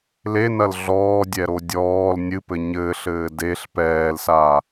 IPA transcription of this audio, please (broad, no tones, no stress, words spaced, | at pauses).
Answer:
lenɐl ɮɔːdʲɛɾo dʲɔːl nʲɨpɘ ɲɘːɬɘː deɬ pɛːlsa